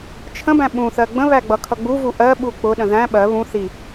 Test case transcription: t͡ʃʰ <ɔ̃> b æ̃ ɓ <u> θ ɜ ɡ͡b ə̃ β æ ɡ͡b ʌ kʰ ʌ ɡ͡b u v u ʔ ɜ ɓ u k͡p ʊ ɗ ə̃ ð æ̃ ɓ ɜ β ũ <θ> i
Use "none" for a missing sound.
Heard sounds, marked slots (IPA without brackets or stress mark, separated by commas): ə̃, ũ, θ